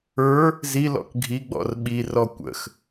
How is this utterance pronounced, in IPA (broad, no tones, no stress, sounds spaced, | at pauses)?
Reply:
ə˞ | z i l ɔ̰ k ɡʱ i ɡ͡b ɔ̰ r ɓ i r ɔ kʷ ə̰ x